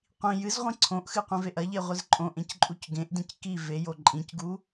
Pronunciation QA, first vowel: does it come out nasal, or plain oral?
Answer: nasal